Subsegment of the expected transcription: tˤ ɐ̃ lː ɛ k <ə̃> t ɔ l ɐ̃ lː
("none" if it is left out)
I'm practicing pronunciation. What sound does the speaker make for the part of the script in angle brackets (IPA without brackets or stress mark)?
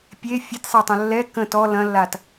ə̃